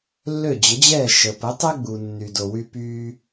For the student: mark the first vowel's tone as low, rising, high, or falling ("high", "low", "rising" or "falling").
falling